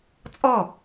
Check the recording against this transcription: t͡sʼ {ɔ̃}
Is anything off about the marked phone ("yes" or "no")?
yes